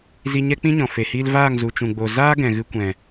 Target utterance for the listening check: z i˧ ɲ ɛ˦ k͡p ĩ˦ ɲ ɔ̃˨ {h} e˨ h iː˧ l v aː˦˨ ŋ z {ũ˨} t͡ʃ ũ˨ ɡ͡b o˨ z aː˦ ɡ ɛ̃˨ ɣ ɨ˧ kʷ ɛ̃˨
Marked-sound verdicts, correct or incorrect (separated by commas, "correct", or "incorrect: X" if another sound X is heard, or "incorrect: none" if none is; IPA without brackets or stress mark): incorrect: f, incorrect: u˨